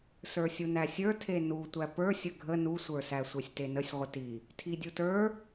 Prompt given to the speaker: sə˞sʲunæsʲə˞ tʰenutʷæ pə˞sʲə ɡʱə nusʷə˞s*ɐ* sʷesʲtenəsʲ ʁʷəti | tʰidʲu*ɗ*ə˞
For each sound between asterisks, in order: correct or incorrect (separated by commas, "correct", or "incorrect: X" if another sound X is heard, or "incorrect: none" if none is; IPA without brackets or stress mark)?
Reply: incorrect: æ, incorrect: t